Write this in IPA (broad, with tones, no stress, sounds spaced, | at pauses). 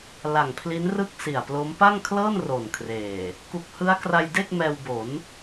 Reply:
l a˨˩ ŋ pʰ l i˦˥ n r ɯ˥˩ k̚ s i˨˩ a̯ p l o˦˥ m p a˥˩ ŋ kʰ l ɤː˥˩ n r o˨˩ n kʰ r eː˨˩ | k u˨˩ k̚ h ɯ˦˥ a̯ k r a˧ j d e˥˩ k̚ m ɛː˧ w b o˩˦ n